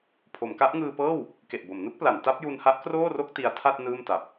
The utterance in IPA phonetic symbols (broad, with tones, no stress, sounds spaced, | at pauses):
pʰ o˩˦ m k a˦˥ ʔ ŋ ɯː˧ p ɤː˥˩ w | k e˨˩ ʔ b o˩˦ m n u˦˥ k̚ p l a˩˦ n t a˦˥ p̚ j u˧ n h a˦˥ ʔ k r oː˥˩ r o˥˩ k̚ t i˧ a̯ tʰ a˥˩ t̚ n ɯː˥˩ m t a˨˩ p̚